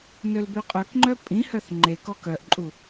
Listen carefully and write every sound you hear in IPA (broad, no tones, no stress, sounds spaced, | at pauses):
n ø l b ø qʼ œ k ŋ͡ǃ œ pʼ ĩ h œ θ ŋ͡ǃ e k ɔ k œ ʔ ǃʼ u